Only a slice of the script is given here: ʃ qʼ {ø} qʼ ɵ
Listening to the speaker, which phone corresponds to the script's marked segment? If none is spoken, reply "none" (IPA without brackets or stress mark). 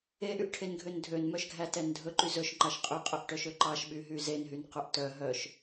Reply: y